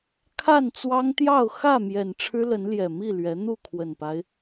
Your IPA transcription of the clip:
kʰ a˥˨ n t͡s w ɑ˦ ŋ t̪ j ɑ˥˨ ʊ̯ x ä˥˨ m j ɛ˨˩ n ʈ͡ʂʰ ɻ̩˦ l ə˨˦ n l j ɛ˨˩ m i˥˨ l ɥ ɛ˨˦ n̪ u˥˨ kʰ w ə˨˩ n p a˦ ɪ̯

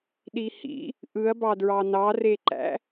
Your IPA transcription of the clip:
ɗ i h ḭ | ʔ ɯ ɐ̯ b ɑ d ɹ ɑ n ɑ r e ǃ æ̰

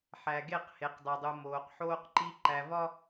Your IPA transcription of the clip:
ħ æ˨ ɡ e˦˨ q h e˨ q dˤ e˨ dˤ u˨ m oː˨ q ħ oː˦ q ǃ i˦ ǃ æ˨ v ɒ˦

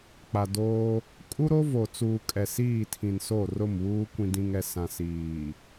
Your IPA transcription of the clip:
k͡p a˨ d oː˦ | kʼ u˦ ɾ o˦ v o˨ t͡s uː˨ kʼ ɛ˨ s iː˦˨ tʰ ĩ˨ n s o˦˨ r ʊ˦˨ m β uː˦ kʷ ĩ˨ d ĩ˨ ŋ ɛ˨ s ã˨ s iː˨

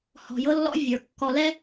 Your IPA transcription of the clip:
h ɔ̤˨ j ɤ˦ lː ɔ̰˦ vʲ ə˞˨ kː ɔ˨ l ɛ˦

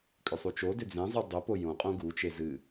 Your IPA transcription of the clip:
kʼ ʏ sˤ u t͡ʃ o d ʏ d͡z ẽ zˤ u dˤ ʏ p o j õ qʼ õ ɡ u t͡ʃ e z ɨ

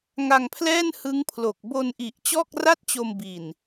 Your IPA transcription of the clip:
ŋ a˧ ŋ pʰ l ɛː˥˩ n h ɯ˦˥ ŋ pʰ l o˨˩ k̚ b o˧ n ʔ i˨˩ ʔ t͡ɕ ɔː˥˩ k̚ r a˥˩ t̚ t͡ɕ o˧ m b i˨˩ n

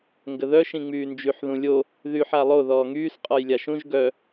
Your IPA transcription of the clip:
ŋ ɡ ə ð œ ʃ ĩ ŋ͡m yː n d͡ʒ y ħ ð ũ lʲ o | ð y ħ a lˠ o ð ɔː ŋ yː s qʼ ɔ j lʲ a ʃ ũ ʒ ɡ œ

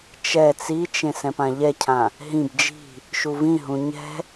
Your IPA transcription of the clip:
t͡ʃ ɛ t͡s i t͡ʃ ẽ s ɛ̃ p ã ʎ ɛ cʰ ã | ɦ ĩ b d͡ʒ i̤ | ʃ u v ĩ ɦ ũ ɲ ɛ̤

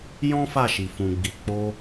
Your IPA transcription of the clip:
j ɔ̃˦ f a˦˨ ʃ i˨ f ũ˨ ɡ͡b i˨ k͡p o˧

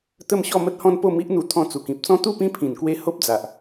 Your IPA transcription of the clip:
t̪ ə˥˧ m ɕ ɔ˥˧ m ə˦ t̚ h ɔ̃˦ n p o˥˧ m i˦ ʔ n̪ u˧ t̪ʰ ɔ̃˧ t͡s u˨˩ k ĩ˨ p̚ t͡s ɔ̃˦ t̪ u˥˧ p ĩ˦ pʰ ĩ˨˩ n k w e˧ h o˦ p̚ d͡z a˨ ʔ

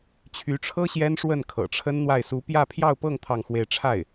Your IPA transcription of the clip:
t͡ɕʰ y˧˥ ʈ͡ʂʰ ɤ˥ ɕ j ɛ˥ n ʂ w ə˥˩ n kʰ ɤ̰˨˩ ʈ͡ʂʰ ə˥ n n̪ w a˥˩ ɪ̯ s u˧˥ p j ä˥˧ pʰ j ɑ˥˧ ʊ̯ p ɤ˥˧ ŋ t̪ʰ ɑ˥˧ ŋ x w e˥˧ ɪ̯ ʈ͡ʂʰ a˥˩ ɪ̯

